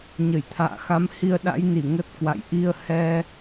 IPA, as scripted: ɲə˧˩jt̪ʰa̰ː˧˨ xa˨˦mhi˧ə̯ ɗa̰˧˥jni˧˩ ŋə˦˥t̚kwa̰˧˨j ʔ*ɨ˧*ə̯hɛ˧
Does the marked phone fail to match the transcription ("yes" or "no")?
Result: yes